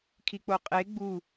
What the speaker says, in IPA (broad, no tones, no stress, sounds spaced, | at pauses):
kʰ i k͡p o qʼ e ɡ͡b u